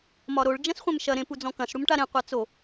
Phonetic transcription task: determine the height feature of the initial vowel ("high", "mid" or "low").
low